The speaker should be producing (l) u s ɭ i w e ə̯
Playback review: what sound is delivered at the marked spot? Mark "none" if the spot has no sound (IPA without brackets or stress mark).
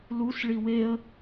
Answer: l